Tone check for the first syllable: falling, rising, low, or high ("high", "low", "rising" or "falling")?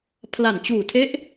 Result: low